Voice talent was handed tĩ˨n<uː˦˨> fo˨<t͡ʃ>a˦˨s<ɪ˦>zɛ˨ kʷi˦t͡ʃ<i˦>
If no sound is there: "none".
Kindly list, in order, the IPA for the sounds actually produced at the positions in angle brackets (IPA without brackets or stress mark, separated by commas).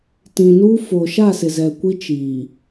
uː˦, ʃ, ɪ˨, i˨